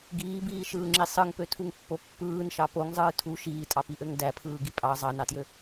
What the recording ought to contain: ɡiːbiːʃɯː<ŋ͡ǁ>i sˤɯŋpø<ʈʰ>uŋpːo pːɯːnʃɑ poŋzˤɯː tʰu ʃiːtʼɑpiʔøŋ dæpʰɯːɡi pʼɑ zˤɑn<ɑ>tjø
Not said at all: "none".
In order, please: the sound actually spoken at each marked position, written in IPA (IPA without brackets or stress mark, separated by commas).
ŋ͡ǁ, tʰ, ɑ